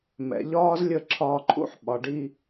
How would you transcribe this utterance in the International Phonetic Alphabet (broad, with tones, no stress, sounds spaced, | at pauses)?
m ɛ̰˨ ʎ ɒː˦ z lʲ ə˦˨ ǁʰ ɒː˧ ǃʰ ṵ˦ ħ ɓ ɒ˨ ɖ i˧